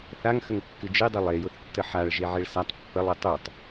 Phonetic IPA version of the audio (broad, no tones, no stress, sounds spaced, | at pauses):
θ a ŋ x ə ŋ kː ɨ d͡ʒ e dˤ ɨ lˠ e j ʊ θ tː ə ħ a ɭ ʒ e ʕ e ɭ s a tˤ pː ə lˠ ɨ tˤ u tˤ